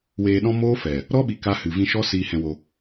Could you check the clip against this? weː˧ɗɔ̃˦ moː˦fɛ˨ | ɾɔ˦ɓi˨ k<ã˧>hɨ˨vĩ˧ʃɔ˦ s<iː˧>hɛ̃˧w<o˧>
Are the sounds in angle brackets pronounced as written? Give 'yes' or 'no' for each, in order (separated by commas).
no, yes, yes